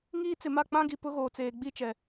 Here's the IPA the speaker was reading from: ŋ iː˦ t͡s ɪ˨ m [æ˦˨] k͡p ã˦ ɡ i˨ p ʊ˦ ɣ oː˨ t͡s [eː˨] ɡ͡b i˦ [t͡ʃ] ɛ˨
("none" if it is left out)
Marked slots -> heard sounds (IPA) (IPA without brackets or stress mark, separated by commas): a˦˨, eː˨, t͡ʃ